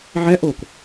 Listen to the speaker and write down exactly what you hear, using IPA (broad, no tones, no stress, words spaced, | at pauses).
ʕɛʔok